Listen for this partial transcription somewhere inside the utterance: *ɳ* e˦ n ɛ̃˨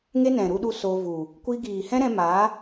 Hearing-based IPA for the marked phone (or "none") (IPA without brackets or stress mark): ŋ